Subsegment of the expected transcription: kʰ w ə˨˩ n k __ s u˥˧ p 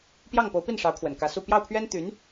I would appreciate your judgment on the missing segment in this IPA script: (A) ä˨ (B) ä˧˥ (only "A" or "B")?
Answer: B